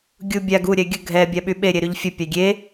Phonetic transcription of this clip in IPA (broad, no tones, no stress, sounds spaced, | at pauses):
ɡʲ u bʲ a ɡ u ɾʲ ɛ ɡʲ ə ɡʱ ɛ bʲ a ɓ y ɓ e ɾʲ e ɾ y ʎ fʲ ə pʲ a ɡʲ e